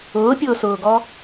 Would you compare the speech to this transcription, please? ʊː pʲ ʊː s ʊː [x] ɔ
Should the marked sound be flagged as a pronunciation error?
yes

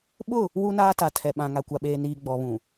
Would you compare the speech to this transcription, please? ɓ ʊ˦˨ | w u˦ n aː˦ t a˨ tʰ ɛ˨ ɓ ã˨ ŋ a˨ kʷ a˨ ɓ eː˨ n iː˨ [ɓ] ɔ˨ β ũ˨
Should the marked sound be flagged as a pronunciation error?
yes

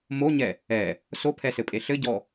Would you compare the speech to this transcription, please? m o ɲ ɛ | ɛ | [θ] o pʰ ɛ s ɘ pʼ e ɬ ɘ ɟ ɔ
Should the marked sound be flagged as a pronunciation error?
yes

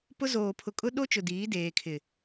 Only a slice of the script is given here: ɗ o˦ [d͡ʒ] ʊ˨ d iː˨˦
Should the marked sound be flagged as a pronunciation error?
yes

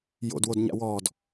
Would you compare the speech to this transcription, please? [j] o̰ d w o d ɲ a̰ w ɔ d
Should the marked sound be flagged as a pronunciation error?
no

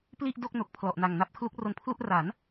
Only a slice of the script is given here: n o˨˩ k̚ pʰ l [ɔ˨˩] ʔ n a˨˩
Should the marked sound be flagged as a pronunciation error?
no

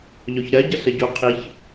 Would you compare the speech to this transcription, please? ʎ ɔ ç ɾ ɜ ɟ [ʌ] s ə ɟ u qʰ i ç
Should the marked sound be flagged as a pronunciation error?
no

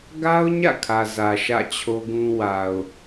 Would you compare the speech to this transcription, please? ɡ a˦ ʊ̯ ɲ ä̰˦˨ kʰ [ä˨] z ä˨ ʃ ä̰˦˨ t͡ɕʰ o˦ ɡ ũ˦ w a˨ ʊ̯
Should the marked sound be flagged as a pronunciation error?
no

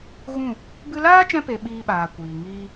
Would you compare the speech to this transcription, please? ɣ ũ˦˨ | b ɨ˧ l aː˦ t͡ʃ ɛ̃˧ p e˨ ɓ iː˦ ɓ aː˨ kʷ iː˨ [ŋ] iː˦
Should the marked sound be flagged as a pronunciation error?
no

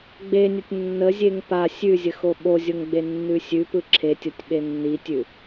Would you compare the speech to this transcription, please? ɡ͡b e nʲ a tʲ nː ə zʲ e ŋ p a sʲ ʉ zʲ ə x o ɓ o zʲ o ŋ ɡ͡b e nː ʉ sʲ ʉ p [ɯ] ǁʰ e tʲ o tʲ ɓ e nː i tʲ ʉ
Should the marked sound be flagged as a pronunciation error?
no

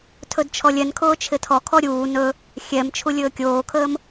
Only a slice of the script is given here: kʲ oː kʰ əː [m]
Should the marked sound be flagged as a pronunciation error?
no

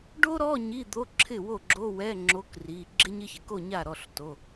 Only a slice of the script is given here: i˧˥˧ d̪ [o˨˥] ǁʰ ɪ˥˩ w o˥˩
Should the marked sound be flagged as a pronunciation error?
yes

